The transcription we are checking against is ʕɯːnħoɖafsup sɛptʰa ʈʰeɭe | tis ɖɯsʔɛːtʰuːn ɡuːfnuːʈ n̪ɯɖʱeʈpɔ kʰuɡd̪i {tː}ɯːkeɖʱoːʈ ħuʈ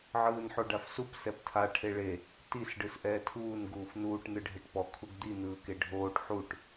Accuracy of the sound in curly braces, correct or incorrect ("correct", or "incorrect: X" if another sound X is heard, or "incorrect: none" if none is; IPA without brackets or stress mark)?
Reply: incorrect: n̪